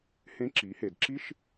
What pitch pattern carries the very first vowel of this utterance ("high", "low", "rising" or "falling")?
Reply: rising